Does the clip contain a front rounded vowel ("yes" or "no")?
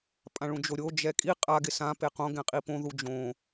no